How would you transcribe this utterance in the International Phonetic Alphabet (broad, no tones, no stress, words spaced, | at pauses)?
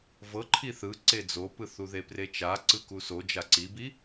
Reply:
vɤ ǃʰiθɯ ǀed͡zopɯθu ðepret͡ʃa ǀɯkuso d͡ʒaǀibi